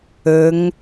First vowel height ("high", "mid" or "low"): mid